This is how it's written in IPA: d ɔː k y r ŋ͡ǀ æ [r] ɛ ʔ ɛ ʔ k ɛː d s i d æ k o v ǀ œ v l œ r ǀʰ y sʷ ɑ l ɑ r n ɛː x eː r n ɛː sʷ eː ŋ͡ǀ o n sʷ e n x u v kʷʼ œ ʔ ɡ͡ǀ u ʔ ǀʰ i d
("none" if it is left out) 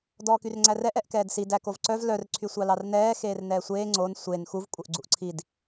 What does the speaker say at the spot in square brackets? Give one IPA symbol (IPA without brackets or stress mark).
r